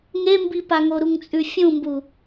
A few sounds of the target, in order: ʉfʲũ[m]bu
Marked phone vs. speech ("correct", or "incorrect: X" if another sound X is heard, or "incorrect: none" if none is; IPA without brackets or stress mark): correct